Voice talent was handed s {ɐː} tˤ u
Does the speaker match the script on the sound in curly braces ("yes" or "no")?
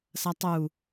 no